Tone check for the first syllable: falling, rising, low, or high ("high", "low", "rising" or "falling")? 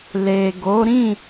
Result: low